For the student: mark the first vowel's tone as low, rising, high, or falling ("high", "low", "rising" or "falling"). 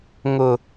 low